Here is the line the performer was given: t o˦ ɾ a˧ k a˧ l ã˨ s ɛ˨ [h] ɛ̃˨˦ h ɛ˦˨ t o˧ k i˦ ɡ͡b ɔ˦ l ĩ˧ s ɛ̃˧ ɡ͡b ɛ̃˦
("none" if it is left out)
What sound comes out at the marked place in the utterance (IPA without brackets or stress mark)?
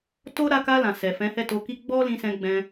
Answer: f